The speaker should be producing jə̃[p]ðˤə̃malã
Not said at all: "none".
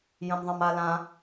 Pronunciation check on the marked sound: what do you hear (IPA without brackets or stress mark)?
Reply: m